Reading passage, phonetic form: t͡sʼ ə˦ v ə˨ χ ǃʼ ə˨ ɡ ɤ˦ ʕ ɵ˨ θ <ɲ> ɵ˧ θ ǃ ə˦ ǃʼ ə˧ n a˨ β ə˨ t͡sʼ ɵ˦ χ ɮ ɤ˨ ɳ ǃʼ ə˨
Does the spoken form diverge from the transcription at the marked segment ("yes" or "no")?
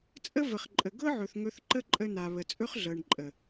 yes